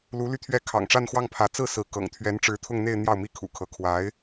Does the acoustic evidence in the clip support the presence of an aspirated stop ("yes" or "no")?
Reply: yes